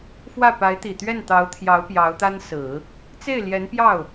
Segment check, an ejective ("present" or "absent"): absent